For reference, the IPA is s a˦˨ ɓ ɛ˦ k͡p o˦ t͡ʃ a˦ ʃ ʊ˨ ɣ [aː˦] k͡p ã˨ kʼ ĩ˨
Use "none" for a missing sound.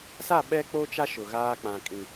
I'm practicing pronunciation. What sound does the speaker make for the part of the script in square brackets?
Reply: aː˦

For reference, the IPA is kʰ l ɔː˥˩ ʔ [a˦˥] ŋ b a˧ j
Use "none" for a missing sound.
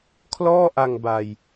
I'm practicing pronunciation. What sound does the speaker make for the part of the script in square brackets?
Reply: a˧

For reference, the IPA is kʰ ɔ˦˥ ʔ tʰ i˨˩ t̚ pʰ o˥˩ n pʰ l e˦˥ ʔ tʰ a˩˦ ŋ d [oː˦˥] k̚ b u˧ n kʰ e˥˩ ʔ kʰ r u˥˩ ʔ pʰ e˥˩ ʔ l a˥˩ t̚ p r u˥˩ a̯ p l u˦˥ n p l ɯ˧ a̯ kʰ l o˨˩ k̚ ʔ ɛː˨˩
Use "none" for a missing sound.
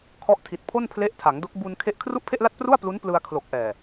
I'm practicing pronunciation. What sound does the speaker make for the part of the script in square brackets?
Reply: o˦˥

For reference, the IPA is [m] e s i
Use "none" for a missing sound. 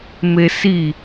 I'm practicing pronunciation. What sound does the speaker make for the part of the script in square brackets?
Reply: m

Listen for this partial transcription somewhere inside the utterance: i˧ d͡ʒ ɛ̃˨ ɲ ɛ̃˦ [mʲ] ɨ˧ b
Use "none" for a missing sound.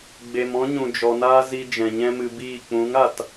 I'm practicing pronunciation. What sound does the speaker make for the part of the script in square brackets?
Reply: m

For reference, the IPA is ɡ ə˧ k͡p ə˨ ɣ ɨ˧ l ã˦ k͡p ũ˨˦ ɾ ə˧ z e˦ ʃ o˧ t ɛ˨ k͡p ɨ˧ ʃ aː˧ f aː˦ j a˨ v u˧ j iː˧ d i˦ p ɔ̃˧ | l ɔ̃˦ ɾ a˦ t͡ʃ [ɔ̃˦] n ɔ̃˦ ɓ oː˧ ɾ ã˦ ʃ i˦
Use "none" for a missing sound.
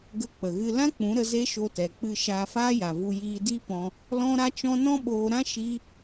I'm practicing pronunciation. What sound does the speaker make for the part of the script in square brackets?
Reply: ɔ̃˦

